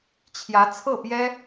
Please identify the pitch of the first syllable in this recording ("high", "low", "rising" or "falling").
rising